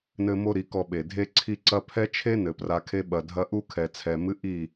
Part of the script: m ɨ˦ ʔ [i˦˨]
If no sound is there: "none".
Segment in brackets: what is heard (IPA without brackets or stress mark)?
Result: i˦˨